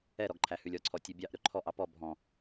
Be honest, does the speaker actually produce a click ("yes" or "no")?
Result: yes